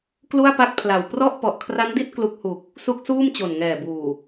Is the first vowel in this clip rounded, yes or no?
yes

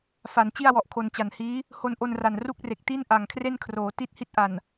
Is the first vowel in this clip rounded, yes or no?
no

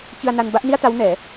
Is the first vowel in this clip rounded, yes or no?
no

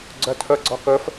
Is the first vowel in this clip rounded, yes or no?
yes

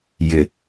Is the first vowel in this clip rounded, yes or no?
no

